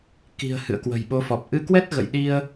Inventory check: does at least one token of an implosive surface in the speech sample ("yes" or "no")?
yes